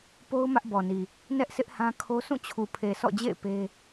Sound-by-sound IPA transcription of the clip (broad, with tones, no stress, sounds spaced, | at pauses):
p o˦ ʊ̯ m ä˦ ʔ b ɔ˨ n i˨ | n ɛ˦ ʔ sʰ ɪ˦ ʔ h ã˦ kʰ o˦ sʰ ũ˦˨ t͡ɕʰ u˨ pʰ e˨ s ɔ̰˦˨ d͡ʑ ḛ˦˨ ɪ̯ p e˦